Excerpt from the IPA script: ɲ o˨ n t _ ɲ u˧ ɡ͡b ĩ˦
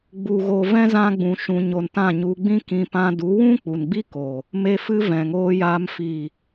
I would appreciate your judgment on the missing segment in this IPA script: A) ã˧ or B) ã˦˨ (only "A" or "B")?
B